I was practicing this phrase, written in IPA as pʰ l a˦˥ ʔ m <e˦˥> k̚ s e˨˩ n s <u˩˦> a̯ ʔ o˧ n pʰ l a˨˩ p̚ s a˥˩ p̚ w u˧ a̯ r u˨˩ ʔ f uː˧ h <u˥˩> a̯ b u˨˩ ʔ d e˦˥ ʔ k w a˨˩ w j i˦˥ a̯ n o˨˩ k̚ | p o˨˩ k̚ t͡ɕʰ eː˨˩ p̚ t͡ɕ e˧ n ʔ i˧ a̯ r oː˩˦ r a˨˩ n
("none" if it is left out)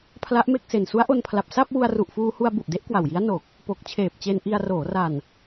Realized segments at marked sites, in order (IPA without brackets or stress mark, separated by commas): e˥˩, u˦˥, u˧